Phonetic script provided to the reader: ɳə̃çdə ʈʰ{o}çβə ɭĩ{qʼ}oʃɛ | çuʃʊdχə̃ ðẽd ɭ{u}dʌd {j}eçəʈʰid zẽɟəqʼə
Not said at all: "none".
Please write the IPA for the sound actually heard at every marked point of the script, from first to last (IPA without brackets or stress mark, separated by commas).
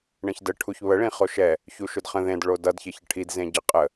u, χ, o, ç